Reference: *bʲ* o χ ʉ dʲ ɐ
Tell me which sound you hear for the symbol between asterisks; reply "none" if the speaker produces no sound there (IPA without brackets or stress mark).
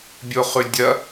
bʲ